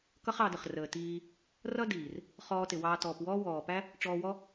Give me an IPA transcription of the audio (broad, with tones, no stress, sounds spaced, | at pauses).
k ʌ˦ χ ɑ˧ d ə˨ χ r əː˨ t iː˧ | r ʌ˦ d iː˨ r | χ ɔː˧ t ɪ˨ w ɑː˧ t ɔː˨ p w ɔː˦ w ɔː˨ p æ˦ | ʈ͡ʂ ɔː˧ w ɔ˦